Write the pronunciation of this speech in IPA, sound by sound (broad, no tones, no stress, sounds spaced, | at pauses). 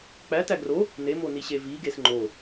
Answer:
k͡p æ t æ ɡ r o | n e m o n i ɕ e v i ɡ e s ŋ͡ǃ o